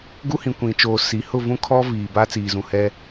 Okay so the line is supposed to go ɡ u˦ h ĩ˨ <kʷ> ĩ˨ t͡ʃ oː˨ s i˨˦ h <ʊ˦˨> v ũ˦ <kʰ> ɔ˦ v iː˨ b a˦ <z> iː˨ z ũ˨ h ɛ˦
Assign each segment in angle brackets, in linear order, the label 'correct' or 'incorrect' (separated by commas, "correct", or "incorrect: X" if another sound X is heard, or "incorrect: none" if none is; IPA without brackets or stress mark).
correct, correct, correct, incorrect: t͡s